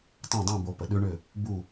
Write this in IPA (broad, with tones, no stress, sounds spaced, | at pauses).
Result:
tˤ õ˥˧ dˤ ũ˥˧ b o˧ p ə˧˩˧ ɗ ʉ˦˥ ɳ ʏ˥˧ | b u˥˧